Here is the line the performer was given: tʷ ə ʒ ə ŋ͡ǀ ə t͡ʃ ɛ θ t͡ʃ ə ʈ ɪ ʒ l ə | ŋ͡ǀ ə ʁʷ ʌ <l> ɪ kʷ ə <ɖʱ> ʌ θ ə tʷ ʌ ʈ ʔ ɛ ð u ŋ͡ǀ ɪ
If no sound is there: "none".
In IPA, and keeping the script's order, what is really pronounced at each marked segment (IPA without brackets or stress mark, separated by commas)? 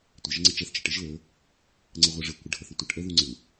ʐ, ɖʱ